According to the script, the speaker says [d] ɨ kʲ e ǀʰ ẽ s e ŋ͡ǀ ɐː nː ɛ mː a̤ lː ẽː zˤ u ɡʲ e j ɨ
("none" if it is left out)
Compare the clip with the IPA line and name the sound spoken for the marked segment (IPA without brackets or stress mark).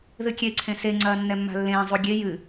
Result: ð